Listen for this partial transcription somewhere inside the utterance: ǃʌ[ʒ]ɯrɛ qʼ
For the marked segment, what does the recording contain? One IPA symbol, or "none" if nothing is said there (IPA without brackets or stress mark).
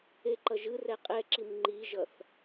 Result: ʒ